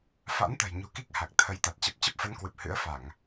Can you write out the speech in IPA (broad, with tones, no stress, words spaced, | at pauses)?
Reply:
fa̰˧˥nt̪ə̤˨˩jɲṳ˨˩ ki˦˥k̚ha˨˩k̚t̪ʰə˨˦jt̪a˨˩t̚ t͡ɕə˨˩p̚t͡ɕə˦˥p̚fə˨˦nkwɨ˨˩p̚ hɨ̰˧˥ə̯ fa˧˩˨ŋ